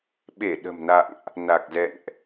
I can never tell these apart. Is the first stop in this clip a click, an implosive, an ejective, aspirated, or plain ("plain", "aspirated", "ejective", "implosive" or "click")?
implosive